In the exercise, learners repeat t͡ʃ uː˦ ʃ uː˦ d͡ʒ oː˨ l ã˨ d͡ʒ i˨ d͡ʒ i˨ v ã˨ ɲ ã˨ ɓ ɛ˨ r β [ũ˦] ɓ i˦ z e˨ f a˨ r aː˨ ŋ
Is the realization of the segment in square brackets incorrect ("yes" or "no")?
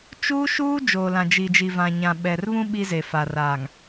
no